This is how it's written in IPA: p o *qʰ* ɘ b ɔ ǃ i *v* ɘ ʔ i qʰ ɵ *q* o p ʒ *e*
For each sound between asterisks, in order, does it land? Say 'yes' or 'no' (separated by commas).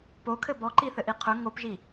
no, no, no, no